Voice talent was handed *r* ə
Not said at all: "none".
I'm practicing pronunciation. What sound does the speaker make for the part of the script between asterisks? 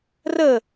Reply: r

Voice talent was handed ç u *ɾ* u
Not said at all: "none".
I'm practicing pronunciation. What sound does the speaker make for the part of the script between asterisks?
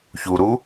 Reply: ɾ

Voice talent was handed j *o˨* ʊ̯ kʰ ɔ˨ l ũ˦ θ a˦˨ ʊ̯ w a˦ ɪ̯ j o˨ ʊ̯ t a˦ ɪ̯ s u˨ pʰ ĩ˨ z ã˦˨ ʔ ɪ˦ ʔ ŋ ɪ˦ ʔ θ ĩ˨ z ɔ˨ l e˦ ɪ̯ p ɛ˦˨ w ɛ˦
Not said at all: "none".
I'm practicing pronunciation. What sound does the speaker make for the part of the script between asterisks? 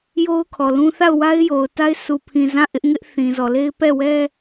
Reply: o˦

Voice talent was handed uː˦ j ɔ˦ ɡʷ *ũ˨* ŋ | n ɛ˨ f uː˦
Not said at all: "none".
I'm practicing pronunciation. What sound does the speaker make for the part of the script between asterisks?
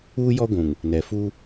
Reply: ũ˨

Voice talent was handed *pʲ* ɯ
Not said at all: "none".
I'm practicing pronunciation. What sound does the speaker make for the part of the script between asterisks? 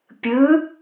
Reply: pʲ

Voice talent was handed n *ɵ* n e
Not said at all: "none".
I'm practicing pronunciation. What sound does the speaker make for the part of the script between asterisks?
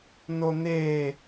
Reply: o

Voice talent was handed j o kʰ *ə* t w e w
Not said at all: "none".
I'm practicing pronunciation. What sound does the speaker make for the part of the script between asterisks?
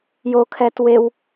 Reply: ɛ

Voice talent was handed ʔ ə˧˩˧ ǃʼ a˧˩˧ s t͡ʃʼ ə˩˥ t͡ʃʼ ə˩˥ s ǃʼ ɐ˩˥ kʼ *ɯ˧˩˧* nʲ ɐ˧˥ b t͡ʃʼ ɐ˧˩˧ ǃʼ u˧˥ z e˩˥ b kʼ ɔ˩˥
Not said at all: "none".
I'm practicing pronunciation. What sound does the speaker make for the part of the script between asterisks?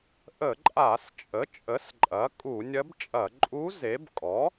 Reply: u˧˩˧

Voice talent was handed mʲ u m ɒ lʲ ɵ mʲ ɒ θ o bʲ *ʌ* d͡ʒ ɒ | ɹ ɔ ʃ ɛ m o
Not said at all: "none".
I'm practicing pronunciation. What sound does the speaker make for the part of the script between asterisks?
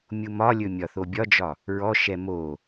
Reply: ɒ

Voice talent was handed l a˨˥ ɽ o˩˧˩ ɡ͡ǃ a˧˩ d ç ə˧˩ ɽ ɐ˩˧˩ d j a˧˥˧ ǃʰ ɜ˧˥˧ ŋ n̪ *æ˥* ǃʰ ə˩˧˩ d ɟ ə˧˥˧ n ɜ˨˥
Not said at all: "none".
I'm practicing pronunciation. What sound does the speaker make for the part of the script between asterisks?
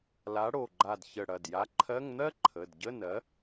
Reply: ɜ˥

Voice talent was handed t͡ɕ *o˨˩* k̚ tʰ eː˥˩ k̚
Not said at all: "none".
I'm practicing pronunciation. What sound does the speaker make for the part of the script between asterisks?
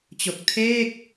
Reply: o˨˩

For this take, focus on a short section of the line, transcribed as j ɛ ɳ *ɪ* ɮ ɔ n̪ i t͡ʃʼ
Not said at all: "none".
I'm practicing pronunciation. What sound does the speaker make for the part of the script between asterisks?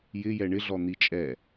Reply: ɪ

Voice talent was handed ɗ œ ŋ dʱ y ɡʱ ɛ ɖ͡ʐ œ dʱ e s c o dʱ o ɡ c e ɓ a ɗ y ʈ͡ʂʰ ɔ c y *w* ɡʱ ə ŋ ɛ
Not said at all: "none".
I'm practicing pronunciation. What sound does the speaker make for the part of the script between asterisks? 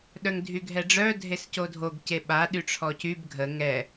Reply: b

